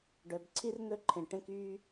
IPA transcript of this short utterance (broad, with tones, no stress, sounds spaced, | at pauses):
ɖ œ˩ b ǀʰ i˥ r n̪ ɵ˥ ǃʰ ẽ˩ ʈ ẽ˧ k yː˧